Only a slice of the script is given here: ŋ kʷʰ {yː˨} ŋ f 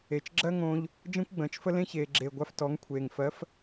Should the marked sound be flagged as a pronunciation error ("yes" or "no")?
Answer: yes